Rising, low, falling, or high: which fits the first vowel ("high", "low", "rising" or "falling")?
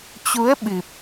rising